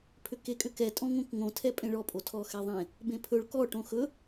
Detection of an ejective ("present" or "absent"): present